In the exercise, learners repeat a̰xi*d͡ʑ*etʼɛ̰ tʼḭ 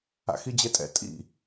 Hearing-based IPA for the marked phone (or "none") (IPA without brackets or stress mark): d͡ʑ